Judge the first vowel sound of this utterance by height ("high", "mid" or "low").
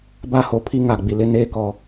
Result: low